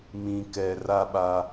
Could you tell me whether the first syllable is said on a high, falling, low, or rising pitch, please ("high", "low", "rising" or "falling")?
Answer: low